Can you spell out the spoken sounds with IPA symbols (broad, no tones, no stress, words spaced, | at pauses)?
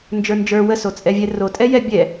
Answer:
nd͡ʒə˞nd͡ʒə˞ wəsot͡sʼɛvʲɛ ro tʼɛjɛbʲɛ